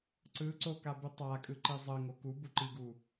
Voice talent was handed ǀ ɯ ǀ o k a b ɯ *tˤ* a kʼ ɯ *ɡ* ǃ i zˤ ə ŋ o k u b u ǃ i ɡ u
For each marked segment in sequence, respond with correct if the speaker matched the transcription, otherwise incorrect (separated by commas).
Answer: correct, incorrect